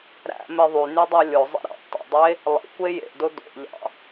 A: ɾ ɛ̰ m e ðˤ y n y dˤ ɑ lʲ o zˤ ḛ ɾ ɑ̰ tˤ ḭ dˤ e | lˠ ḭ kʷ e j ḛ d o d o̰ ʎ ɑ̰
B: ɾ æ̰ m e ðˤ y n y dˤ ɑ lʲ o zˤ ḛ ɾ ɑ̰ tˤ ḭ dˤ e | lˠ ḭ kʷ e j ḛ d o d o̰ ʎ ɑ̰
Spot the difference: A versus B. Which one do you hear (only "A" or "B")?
B